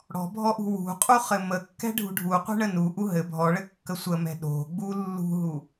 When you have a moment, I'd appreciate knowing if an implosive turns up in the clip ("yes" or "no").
yes